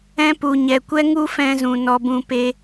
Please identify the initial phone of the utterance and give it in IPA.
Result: ɛ̃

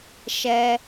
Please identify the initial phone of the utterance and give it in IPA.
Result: ʃ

